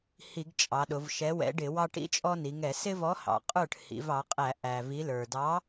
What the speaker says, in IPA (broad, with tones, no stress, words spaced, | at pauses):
hi˧˩˧ɡt͡ʃʼɑ˩˧ɗʊ˩˧v ʃɛ˨˥wɛ̰˨˥ɖɪ˧˩˧wɑ˦ ʈḭ˦t͡ʃʼɔ˦ni˩˧ŋɛ˧˩˧ sɪ˦vɔ˨˥hɑ̰˩ qʼə˞˥˩ʈ hḭ˩˧vɑ˩˧qʼæ˧˩˧ ʔæ˩ vi˩˧lə˞˩dɑ˨˥